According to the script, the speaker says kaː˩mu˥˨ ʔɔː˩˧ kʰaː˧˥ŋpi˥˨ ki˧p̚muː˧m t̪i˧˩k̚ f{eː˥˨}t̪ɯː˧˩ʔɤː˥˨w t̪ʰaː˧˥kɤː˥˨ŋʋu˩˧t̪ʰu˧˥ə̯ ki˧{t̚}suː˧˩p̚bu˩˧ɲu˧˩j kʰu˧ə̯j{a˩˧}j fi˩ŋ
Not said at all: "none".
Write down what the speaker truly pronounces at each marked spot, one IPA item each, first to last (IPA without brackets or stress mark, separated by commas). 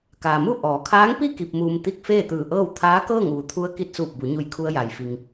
eː˥˨, t̚, a˩